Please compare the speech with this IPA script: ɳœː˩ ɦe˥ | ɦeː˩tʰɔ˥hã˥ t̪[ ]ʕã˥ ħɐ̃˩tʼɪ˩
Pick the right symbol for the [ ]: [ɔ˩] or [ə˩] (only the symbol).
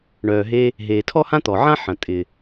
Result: ɔ˩